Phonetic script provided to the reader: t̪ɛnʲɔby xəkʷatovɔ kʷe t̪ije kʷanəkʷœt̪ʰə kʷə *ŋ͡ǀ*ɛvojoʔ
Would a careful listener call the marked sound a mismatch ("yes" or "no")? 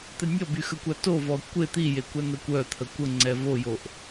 no